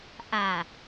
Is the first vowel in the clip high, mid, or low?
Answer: low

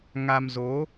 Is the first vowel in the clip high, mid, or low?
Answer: low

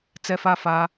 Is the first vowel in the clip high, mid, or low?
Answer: mid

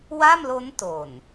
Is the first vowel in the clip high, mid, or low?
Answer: low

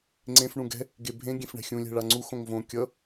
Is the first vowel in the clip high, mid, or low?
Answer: mid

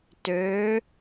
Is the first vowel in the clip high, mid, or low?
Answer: mid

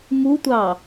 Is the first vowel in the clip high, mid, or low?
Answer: high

